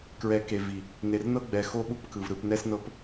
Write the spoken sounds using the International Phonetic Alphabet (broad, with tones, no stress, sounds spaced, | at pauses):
k ɹ ɛ˨˦ k e˨ v i˨ | n e˨ r n ɤ˦ ɡ͡b ɛ˨ x o˦ ɓ u˦ p k ɯ˨ v ɾ ɯ˨ p n ɛ˦ s n ɤ˦ p